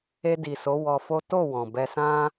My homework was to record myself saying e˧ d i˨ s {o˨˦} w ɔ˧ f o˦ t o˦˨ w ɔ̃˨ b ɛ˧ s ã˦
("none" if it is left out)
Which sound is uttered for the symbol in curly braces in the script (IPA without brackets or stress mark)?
o˨˦